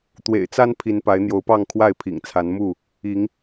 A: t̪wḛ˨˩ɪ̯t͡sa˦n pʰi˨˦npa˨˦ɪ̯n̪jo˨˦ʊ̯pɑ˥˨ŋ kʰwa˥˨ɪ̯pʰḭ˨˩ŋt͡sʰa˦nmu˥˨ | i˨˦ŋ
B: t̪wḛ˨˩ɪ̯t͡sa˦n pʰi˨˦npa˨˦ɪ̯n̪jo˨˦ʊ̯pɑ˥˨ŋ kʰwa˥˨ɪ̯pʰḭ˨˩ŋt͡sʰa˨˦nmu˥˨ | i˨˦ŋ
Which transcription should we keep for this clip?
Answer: B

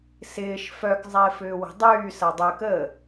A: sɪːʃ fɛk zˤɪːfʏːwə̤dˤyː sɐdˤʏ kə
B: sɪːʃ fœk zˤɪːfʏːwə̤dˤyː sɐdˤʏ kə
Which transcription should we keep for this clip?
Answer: B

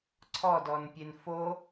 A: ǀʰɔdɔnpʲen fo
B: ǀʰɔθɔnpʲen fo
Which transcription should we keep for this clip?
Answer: A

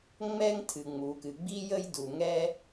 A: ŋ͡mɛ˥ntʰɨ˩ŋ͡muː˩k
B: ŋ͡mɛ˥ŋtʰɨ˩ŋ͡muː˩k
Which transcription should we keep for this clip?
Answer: B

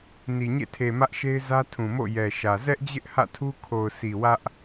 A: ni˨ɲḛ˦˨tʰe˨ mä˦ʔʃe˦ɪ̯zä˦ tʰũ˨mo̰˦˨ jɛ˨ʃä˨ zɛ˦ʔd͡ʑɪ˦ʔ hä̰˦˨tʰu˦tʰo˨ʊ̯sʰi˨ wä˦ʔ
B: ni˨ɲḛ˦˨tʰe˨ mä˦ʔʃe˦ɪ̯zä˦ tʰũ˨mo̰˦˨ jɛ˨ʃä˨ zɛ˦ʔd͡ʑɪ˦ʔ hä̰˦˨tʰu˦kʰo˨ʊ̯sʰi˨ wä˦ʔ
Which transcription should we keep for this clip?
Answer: B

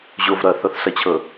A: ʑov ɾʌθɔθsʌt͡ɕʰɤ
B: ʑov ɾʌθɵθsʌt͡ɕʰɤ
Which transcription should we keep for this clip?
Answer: A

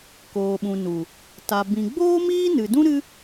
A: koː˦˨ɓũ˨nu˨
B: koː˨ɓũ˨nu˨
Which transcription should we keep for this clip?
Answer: B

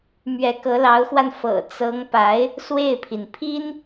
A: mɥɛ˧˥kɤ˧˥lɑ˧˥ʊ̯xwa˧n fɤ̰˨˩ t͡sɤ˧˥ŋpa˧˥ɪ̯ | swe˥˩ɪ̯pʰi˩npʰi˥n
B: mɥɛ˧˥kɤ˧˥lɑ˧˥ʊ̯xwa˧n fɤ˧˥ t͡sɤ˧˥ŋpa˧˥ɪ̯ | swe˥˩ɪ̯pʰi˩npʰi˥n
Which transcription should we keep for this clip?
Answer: A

